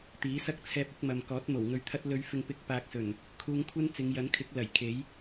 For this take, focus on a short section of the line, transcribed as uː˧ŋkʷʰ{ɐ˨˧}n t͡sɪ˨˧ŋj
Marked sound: incorrect: ɐ˥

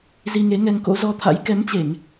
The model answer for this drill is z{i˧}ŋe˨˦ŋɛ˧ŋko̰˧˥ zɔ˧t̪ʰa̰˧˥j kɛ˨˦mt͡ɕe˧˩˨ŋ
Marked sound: correct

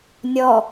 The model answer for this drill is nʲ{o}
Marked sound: incorrect: ɔ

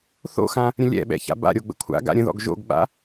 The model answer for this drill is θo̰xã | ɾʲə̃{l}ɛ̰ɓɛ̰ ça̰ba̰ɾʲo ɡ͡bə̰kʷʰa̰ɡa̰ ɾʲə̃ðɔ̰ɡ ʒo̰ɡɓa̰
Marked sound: incorrect: lʲ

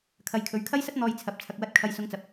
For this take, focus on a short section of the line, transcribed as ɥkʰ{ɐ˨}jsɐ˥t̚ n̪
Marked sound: incorrect: ɐ˥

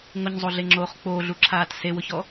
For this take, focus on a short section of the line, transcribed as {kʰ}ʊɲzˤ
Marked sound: incorrect: ŋ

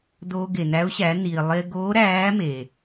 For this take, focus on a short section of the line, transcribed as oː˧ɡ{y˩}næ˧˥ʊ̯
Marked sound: incorrect: e˩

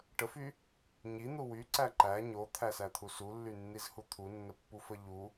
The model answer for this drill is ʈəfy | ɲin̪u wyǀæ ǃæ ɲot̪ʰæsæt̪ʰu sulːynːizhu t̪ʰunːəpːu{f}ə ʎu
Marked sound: correct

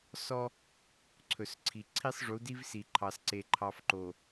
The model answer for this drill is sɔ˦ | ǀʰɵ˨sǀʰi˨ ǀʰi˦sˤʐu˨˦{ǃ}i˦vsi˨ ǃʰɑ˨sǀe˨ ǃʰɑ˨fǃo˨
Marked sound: incorrect: d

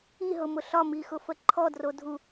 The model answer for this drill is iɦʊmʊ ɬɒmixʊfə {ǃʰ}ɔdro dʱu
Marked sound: correct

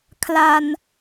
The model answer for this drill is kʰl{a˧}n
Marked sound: correct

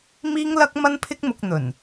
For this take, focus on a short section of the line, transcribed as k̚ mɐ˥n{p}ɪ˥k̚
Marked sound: incorrect: pʰ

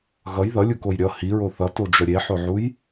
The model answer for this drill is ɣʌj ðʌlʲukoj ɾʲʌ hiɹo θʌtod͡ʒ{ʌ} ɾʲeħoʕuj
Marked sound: correct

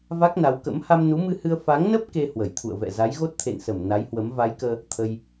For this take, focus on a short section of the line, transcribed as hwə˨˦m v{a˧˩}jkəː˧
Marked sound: incorrect: a˨˦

